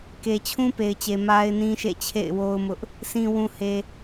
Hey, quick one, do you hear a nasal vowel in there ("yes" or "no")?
yes